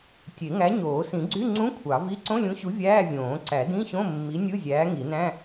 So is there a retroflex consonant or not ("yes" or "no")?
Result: no